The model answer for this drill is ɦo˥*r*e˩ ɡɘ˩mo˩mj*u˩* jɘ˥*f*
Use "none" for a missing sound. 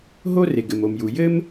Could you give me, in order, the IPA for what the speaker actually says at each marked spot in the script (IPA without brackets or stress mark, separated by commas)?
r, u˩, m